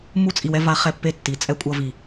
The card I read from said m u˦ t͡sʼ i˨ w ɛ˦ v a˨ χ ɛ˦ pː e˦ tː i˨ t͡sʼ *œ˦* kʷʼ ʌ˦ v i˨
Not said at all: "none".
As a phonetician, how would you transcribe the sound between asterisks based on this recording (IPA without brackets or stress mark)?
ɛ˦